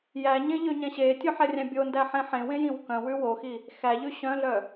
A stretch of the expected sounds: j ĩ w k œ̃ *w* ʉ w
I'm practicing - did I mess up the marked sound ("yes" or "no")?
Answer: no